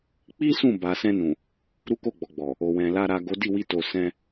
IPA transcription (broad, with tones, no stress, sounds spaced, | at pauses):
k͡p i˦ s ũ˦˨ b a˨ s ɛ̃˧ n ũ˨ | ɾ u˦ k o˦˨ ɡ͡b ɔ˨ ɡ͡b ɔ˨ | o˨ w ɛ̃˨ l a˧ ɾ a˨ ɡ o˨˦ d i˦˨ w i˧ t o˨ s ɛ̃˧